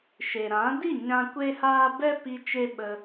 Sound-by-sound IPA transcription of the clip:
ʃ e˨ ɾ ã˨˦ d i˦˨ ɲ ã˦ kʷ e˦ h aː˦ b ɛ˦ p i˧ t͡ʃ e˦ ɓ ə˧

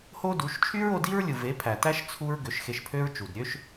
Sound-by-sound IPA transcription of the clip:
h o˦ d u˨˦ ʃ t͡ʃʰ y˦ ɹ o˧ d i˦ ɹ lʲ ɯ˨ v e˨˦ pʰ æ˨ t æ˦ ʃ t͡sʰ u˦ ɹ ɡ ø˨˦ ʃ x e˧ ʃ pʰ ø˦ ɹ t͡ʃ u˨ d ɾʲ ø˦ ʃ

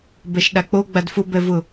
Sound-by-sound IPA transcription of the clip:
b ɛ ʃ ɗ a k͡p o ɡ͡b a d f ʊ b ɛ v ʊ

